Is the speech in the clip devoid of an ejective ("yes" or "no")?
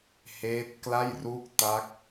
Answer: yes